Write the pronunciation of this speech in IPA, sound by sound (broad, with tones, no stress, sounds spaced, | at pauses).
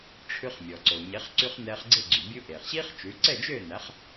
ʈ͡ʂʰ ʉ˧ χ mʲ ɔ˩ ǀ o˩ ɲ e˩˥ χ ǀ y˧ χ n ɛː˧ χ ɡ͡ǀ e˥˩ ɡ͡ǀ y˩ bʲ u˧ ʔ eː˩ χ ɕ iː˥ χ t͡ʃ ʉ˩˥ ǀ ɛ˥˩ d͡ʒ øː˥˩ n æ˩˥ χ